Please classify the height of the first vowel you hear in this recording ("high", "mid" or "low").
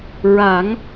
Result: low